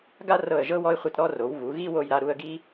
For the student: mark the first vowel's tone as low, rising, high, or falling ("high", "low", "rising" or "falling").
high